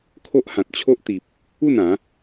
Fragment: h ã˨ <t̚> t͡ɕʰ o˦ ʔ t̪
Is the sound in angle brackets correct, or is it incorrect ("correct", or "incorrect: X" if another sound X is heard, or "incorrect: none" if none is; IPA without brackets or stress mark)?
correct